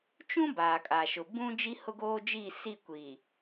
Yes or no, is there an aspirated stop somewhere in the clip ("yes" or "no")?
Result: no